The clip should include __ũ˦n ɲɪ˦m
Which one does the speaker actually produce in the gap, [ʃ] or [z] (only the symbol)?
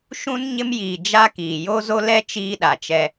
ʃ